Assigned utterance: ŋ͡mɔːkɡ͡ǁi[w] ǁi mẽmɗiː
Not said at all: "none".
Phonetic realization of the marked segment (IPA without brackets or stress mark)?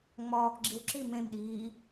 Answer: w